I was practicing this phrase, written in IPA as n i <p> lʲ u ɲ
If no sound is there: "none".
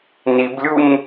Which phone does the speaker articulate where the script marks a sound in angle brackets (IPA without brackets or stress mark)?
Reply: b